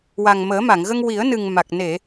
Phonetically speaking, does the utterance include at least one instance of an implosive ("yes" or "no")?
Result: no